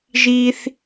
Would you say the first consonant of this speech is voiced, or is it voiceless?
voiced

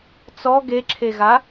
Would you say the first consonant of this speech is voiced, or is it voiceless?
voiceless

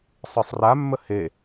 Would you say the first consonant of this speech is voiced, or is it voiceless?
voiceless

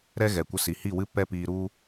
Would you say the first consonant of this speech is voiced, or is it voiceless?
voiced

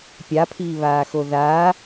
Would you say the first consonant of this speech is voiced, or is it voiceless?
voiceless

